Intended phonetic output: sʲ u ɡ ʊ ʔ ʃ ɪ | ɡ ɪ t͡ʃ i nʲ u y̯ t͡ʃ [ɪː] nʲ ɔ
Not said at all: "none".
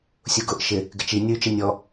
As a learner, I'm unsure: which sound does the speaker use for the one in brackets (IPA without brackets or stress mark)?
ɪ